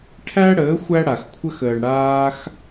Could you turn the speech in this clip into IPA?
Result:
ʈʰ æ˦ ɽ əː˨˦ xʷ æ˦ ɽ a˨ x kʷʰ ə˦ x əː˨ ɳ ɽ aː˧ x

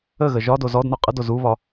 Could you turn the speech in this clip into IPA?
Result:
ə ɣ ə ʒ ɒ d o z ɔ d n ɔ qʼ ə d o z u β ɒ

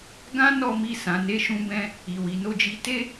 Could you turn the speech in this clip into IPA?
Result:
ɡ ã˦ n ɔ˦˨ m i˧ s ã˨ n e˨˦ ʃ ũ˧ b ɛ̃˧ | i˨ w i˨ n o˧ d͡ʒ i˧ t e˦

